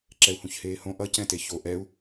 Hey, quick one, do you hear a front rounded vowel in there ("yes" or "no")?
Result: no